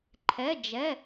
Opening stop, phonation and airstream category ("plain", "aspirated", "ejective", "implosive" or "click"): click